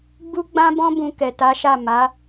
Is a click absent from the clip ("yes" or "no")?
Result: yes